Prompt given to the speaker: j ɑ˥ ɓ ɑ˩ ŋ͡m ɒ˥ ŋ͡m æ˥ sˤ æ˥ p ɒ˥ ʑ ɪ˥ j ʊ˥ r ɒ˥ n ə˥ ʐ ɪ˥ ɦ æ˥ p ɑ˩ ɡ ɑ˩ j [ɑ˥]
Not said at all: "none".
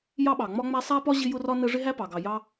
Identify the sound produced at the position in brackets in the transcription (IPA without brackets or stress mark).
ɑ˥